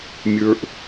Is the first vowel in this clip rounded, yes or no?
no